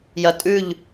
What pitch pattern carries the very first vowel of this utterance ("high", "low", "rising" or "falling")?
low